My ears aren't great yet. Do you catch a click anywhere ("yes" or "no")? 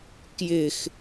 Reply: no